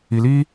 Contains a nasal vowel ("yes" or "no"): no